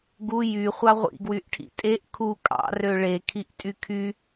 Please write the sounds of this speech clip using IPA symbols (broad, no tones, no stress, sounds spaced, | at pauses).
ɡ u j y χʷ ɑ ʁʷ ḭ ɡ w y ʔ ʈʰ ḭ tʼ e ʔ kʰ u kʼ ɑ̰ r ø ɭ e kʰ i ʔ tʼ y kʰ y